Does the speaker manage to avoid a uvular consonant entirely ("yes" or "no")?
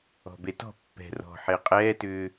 no